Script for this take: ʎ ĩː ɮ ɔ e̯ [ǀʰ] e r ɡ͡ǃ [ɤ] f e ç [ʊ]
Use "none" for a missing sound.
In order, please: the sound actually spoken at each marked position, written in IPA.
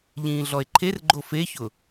ǃʰ, o, ʊ

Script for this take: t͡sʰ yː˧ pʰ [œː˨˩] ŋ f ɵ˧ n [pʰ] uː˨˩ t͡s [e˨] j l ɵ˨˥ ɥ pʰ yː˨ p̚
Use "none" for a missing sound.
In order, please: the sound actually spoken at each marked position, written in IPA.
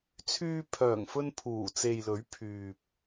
œː˨˩, pʰ, e˨

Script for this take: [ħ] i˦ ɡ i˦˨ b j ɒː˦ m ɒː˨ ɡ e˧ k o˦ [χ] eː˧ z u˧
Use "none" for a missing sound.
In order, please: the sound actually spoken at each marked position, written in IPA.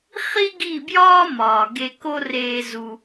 χ, r

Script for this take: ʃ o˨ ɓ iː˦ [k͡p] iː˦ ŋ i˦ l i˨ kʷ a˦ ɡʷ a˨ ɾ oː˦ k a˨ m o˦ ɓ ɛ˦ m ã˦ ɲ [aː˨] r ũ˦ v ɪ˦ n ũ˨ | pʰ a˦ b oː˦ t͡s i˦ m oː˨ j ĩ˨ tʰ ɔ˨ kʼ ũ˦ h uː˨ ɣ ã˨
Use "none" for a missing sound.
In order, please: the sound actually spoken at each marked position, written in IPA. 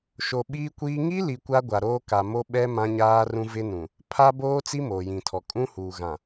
kʷ, aː˦

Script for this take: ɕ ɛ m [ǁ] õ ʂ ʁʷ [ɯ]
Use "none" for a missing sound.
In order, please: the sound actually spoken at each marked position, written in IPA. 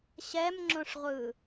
ŋ͡ǁ, ɯ

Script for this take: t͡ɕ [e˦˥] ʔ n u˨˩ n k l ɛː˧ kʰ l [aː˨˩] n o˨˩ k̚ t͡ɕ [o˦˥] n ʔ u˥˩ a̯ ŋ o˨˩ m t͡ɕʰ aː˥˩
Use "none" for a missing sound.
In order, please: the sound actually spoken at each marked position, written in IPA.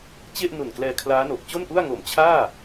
e˥˩, aː˦˥, o˥˩

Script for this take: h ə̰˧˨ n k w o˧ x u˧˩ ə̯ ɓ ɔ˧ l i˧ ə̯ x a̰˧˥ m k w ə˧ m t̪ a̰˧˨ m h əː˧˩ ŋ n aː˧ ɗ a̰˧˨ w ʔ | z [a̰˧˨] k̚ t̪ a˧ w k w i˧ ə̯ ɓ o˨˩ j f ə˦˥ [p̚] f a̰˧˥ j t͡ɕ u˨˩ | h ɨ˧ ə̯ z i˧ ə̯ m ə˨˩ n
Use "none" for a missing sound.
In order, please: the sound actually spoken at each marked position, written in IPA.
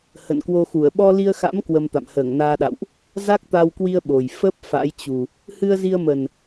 a˦˥, p̚

